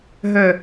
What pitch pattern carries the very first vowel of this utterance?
low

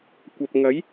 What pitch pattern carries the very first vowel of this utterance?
low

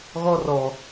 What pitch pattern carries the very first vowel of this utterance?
high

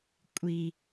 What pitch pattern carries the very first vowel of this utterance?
low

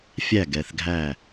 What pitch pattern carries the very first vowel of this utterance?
falling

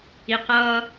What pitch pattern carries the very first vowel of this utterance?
low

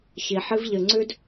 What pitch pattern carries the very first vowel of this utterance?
low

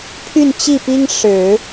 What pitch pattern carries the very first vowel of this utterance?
falling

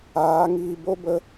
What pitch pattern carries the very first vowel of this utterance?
rising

